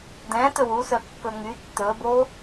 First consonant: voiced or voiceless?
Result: voiced